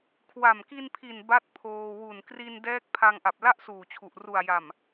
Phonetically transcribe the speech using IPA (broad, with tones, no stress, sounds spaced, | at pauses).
kʰ w a˨˩ m k i˧ n pʰ i˨˩ n b a˦˥ t̚ pʰ oː˧ w u˨˩ n k r i˧ n d ɛː˦˥ k̚ pʰ a˧ ŋ ʔ a˨˩ p̚ l a˥˩ ʔ s uː˨˩ t͡ɕʰ u˨˩ ʔ r u˨˩ a̯ j a˨˩ m